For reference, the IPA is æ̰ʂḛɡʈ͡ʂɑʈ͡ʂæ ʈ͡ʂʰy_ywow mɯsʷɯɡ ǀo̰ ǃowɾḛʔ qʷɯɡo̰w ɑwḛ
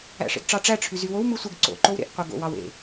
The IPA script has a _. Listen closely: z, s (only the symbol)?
z